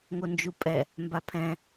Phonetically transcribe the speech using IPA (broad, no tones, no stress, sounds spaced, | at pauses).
ŋ o n d͡ʒ u pʼ ɛ | m b a pʰ ɛ̃